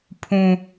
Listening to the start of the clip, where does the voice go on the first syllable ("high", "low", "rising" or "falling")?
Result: low